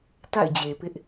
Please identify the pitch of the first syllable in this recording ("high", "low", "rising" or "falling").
falling